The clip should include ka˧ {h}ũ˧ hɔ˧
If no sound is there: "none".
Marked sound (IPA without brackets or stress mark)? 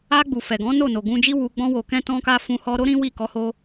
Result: f